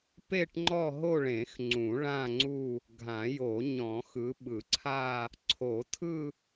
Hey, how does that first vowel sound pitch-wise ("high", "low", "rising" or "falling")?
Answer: falling